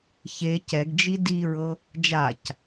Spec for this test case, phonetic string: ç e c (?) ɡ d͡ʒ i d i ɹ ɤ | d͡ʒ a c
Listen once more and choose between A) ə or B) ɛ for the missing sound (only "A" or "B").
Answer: B